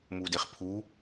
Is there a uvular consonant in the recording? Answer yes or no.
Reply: yes